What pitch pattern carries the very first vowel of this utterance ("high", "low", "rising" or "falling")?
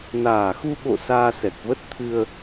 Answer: low